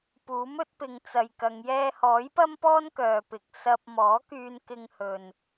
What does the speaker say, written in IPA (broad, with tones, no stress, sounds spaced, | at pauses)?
p uː˨˥ m ɵ˨˥ t̚ p ɪ˨ ŋ t͡s ɐ˨ j k ɐ˨˧ ŋ j ɛː˧ h ɔː˨˥ j p ɐ˥ m p ɔː˥ n k œː˨ p ɪ˨ k̚ s ɐ˧ p̚ m ɔː˨˥ k yː˧ n k ɪ˧ ŋ h ɵ˧ n